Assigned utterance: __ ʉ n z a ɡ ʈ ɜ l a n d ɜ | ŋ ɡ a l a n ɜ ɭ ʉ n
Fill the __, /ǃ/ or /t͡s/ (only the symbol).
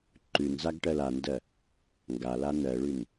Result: ǃ